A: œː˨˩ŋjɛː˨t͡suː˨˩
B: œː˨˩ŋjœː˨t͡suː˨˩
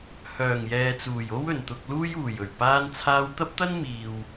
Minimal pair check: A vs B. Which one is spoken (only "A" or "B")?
A